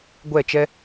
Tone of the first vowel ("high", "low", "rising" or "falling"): falling